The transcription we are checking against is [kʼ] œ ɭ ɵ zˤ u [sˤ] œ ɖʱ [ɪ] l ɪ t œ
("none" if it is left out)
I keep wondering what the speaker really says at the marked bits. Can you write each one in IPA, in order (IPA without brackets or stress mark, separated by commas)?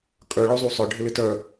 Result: kʼ, sˤ, ɪ